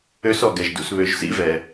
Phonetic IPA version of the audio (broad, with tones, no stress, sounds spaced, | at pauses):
ø˦˥ s ɔ˧˩ ɡ ɛ˩ ʒ d ṵ˩˧ s β ø˩˧ ʒ s ḭ˦˥ v ɛ˩